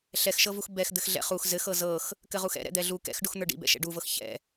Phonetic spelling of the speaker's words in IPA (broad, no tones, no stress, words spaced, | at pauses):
ɬɛxʃɤvux bɛxd̪ɘx ɮɛ̰χux zɘxɤ zɤx | kɘʁuxɛ̰ ɾɛ̰d̪ɛɮu kɛ̰x ɖuxn̪ə˞ɖḭ bɛ̰ʃɛ̰ɖuvɤx çɛ̰